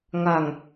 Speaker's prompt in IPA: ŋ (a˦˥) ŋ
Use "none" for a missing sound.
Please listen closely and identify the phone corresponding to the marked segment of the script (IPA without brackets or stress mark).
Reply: a˨˩